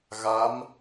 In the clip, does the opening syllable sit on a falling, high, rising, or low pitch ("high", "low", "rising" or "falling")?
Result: rising